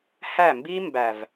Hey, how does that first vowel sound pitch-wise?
falling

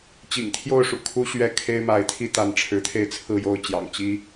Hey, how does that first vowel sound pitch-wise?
low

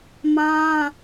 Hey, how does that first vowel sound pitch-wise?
high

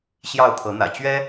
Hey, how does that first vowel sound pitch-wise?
falling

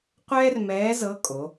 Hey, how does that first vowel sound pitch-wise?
high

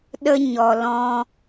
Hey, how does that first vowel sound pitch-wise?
high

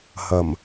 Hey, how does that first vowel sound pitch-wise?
low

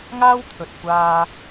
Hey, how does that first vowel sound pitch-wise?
high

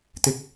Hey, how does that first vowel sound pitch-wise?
high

